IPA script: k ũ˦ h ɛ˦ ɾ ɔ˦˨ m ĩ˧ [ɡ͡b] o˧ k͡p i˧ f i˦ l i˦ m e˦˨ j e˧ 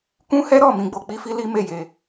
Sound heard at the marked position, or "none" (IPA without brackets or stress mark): ɡ͡b